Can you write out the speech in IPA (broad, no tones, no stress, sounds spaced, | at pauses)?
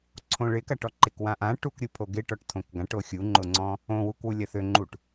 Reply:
ǀʰ õ ɭ ɪ k ɐ ʈ ɔ ǃ e k w ã ʔ ã ʈ u k ɾʲ u pʰ o ɡ ɪ ʈ ɔ ʈ tʰ õ k ɡ ã ʈ o xʲ u ŋ͡ǃ ʊ ŋ͡ǀ ɔ̃ | õ w u k w u lʲ ɐ θ ø ŋ͡ǃ u ʈ